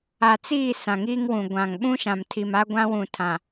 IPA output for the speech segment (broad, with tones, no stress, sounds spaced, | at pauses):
a˨ t͡s iː˦˨ s ã˨ ŋ iː˦ ŋ w ũ˨ ɡʷ ã˨ ŋ ɓ ũ˦ ʃ ã˨ m tʰ i˨ m a˦ ɡʷ ã˦ w ũ˨ tʰ ã˨